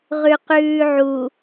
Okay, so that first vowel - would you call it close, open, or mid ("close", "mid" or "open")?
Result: close